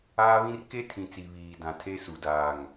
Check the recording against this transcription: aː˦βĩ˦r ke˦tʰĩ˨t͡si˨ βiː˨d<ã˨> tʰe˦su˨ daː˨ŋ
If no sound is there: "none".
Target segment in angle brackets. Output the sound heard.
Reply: ã˨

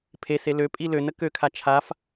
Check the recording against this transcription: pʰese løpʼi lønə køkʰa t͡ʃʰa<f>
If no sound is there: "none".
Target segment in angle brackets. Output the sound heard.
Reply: f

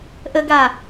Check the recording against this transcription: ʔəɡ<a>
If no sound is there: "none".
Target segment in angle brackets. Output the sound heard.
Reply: a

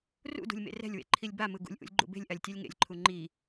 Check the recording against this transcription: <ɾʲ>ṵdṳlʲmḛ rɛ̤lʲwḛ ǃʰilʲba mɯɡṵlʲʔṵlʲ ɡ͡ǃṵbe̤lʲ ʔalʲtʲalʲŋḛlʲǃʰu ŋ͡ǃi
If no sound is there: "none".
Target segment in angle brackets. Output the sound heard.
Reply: r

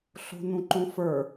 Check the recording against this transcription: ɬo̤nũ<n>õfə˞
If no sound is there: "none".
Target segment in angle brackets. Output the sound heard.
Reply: ǃ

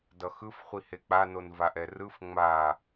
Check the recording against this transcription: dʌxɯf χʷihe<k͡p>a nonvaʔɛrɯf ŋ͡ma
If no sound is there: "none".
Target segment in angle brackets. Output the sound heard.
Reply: k͡p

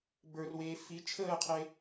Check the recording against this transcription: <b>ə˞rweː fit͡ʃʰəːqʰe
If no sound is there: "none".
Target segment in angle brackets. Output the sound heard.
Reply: b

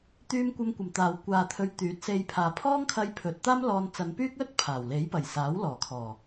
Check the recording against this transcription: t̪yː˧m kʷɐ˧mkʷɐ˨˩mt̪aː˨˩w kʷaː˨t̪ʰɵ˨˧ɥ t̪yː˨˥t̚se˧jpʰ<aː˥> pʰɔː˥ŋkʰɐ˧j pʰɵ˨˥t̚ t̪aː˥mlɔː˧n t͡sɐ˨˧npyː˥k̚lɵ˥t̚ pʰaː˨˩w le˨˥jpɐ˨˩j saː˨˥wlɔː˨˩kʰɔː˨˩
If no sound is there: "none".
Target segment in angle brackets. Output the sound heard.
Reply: aː˨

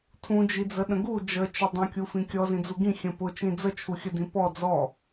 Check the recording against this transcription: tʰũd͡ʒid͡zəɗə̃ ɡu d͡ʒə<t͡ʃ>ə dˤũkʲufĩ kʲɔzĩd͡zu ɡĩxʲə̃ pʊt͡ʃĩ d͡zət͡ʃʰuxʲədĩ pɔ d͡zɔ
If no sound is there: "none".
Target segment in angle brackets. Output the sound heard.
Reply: t͡ʃ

